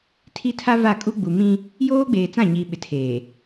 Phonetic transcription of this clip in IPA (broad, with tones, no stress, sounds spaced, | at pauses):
tʰ i˦ tʰ a˦ v a˦˨ kʼ u˦ ɡ͡b u˨ m ĩ˦ | j oː˦ ɡ͡b eː˨ t͡s ã˦˨ ɲ i˨ ɓ ɪ˨ tʰ eː˨